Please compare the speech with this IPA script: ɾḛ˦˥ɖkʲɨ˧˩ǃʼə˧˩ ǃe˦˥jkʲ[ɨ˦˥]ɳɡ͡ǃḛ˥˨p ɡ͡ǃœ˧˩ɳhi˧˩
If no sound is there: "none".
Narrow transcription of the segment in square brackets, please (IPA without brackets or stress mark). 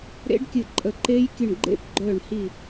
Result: ɨ˧˩